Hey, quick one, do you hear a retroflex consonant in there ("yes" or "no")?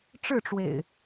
yes